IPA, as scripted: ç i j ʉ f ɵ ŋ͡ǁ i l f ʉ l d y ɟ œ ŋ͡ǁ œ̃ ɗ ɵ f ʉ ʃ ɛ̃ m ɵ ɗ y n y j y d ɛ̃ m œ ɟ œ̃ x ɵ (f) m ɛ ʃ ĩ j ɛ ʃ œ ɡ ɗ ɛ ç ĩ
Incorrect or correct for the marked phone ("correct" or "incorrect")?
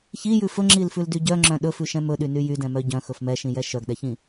correct